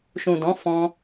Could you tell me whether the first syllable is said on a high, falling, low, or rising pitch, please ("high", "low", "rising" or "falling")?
low